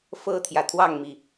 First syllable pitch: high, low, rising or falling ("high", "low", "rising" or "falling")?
high